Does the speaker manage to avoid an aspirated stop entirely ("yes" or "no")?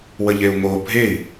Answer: yes